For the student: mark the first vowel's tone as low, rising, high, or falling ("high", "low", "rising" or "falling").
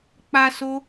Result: high